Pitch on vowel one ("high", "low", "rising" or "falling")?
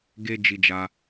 high